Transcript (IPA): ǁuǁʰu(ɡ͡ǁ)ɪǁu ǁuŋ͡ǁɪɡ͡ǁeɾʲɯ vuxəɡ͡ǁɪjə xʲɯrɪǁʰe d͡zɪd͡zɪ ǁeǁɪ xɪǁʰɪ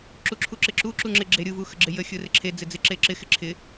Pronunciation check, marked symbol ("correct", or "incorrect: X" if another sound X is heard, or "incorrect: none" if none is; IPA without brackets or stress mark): incorrect: ǁ